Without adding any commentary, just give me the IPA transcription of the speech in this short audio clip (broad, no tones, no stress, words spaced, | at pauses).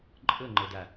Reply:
ǃʼɤŋ͡ǃɤda